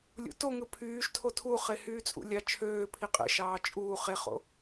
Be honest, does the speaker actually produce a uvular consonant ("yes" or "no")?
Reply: yes